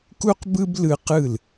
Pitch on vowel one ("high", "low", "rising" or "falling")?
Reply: high